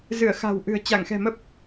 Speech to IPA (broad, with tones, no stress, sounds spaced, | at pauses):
z ɨ˧˩ ə̯ x a̤˨˩ w ʔ ɨ̤˨˩ ə̯ t͡ɕ a˧˩ ŋ x ɛ̤˨˩ m ə˦˥ p̚